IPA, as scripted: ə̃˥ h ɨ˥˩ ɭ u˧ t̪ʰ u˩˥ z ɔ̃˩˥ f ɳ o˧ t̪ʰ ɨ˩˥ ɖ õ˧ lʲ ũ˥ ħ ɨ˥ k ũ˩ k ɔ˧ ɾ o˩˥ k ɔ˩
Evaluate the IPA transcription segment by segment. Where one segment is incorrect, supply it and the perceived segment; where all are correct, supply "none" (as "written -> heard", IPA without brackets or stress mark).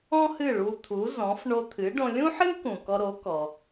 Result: ə̃˥ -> ɔ̃˥